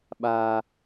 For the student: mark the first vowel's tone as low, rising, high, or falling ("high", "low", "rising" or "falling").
high